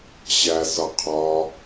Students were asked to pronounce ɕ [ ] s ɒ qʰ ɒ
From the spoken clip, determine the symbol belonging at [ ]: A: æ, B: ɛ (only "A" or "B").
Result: A